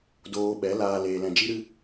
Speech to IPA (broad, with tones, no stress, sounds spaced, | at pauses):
d oː˧ ɓ ɛ˨˦ l aː˧ l eː˧ l ɛ̃˧ d͡ʒ i˦ ɾ ɨ˦